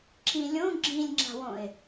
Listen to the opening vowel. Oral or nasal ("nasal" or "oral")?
nasal